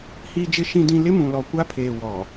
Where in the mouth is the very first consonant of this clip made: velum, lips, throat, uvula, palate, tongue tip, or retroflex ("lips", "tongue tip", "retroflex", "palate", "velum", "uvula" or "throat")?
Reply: throat